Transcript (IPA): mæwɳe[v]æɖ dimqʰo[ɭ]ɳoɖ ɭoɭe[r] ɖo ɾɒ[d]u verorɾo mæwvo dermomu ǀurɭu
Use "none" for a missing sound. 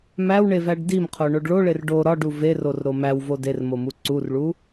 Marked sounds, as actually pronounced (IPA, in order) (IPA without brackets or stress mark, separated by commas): v, none, r, ɖ